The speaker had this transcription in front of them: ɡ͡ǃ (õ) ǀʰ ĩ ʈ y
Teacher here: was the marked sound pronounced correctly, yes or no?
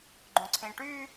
yes